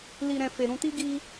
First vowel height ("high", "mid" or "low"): high